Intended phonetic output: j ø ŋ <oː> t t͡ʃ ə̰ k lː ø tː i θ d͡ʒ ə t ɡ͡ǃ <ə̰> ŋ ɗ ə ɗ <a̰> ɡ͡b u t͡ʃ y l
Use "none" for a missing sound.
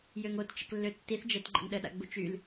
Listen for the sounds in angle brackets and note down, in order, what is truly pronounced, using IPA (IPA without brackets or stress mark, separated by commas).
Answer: o, ə̰, a̰